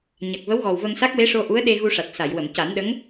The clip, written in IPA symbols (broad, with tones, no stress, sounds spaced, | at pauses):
ɲ a˨˩ k̚ v ə˧˥ w ɣ ɔ˨˩ w v ə˧ ŋ s a˦˥ k̚ w e˧˥ ʂ o˧ ʔ u˧˥ ə̯ ɗ e˧ ɣ u˧ ʂ a˨˩ t̚ s a˨˩˨ j w ə˨˩˨ m c a˨˩˦ n ɗ ə˧˥ ŋ